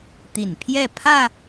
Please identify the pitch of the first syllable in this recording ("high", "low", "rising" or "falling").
low